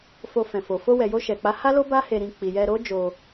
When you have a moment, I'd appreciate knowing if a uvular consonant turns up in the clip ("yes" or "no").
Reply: no